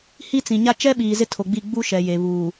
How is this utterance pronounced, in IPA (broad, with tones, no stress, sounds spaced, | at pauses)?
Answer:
h i˦ t͡s ĩ˨ ɲ a˦ t͡ʃ ɛ˦ ɓ iː˨ z ɪ˦ tʰ o˨ ɡ͡b i˦˨ ɡ͡b u˦ ʃ ɛ˨ j e˨ β uː˨